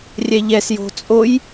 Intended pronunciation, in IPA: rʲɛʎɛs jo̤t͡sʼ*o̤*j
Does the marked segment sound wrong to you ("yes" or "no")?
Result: yes